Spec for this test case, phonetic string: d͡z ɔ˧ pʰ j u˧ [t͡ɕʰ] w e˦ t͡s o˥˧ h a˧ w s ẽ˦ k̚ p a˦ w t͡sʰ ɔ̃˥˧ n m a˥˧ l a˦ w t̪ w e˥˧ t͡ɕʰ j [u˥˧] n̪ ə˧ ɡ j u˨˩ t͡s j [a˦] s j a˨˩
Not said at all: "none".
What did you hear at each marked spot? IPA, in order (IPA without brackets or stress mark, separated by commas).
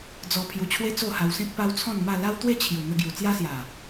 t͡ɕʰ, u˨˩, a˦